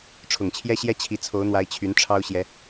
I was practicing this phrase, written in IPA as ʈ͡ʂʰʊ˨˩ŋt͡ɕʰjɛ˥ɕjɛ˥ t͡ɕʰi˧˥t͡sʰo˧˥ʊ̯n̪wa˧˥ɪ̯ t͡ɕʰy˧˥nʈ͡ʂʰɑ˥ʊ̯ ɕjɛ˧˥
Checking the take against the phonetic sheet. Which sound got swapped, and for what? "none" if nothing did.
none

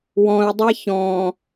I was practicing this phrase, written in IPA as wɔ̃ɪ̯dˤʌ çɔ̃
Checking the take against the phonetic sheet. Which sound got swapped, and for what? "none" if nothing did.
ʌ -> a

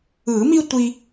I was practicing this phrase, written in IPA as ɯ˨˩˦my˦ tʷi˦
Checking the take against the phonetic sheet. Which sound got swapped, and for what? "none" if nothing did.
y˦ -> i˦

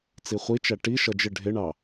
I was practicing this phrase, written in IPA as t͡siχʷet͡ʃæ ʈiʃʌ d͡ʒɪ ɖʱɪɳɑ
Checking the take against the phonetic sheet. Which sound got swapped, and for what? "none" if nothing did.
e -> i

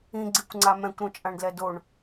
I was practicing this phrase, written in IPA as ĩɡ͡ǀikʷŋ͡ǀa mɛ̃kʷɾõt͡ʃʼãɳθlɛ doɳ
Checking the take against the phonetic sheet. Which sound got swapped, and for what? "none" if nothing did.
θ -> d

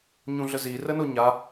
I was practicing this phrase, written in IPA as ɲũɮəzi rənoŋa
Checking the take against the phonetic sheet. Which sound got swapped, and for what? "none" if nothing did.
ŋ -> ɲ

